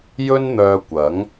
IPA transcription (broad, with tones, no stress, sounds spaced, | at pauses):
j ɵ˥ n n̪ œː˧ kʷ ɐ˨˥ ŋ